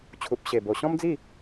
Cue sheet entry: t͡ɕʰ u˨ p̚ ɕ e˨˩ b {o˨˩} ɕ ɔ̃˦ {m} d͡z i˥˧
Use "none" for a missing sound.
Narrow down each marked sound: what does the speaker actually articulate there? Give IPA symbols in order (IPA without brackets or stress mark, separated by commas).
o˨˩, m